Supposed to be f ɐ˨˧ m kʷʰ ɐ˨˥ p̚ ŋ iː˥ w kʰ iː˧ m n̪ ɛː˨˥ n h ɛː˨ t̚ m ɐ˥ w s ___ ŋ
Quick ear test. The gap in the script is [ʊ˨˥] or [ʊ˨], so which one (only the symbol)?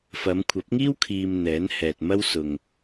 ʊ˨